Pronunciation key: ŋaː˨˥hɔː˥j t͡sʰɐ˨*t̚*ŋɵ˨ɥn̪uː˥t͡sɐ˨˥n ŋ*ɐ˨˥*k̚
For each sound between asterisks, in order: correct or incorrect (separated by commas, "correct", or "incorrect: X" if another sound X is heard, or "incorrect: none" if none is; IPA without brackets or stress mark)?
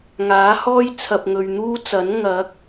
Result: incorrect: p̚, correct